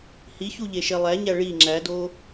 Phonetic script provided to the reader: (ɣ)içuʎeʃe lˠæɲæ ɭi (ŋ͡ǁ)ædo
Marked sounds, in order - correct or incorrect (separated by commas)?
incorrect, correct